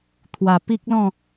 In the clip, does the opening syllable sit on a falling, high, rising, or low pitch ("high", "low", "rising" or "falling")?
low